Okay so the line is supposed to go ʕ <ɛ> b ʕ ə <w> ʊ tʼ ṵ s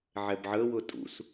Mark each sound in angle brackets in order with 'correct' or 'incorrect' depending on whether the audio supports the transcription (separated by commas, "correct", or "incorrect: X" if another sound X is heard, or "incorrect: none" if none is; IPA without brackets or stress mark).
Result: correct, correct